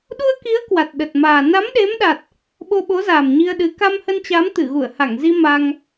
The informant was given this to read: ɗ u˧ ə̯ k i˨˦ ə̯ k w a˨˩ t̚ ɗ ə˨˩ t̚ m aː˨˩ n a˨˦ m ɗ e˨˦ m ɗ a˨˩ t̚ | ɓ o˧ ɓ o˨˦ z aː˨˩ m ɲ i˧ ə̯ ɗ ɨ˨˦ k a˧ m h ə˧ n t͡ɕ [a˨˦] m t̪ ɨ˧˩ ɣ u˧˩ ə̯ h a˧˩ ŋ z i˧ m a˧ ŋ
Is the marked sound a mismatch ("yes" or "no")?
no